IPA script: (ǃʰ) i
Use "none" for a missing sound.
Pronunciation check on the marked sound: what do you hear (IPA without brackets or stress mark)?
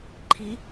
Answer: ǃʰ